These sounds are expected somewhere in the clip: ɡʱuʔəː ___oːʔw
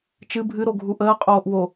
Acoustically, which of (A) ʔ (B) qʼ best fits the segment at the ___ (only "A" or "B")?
B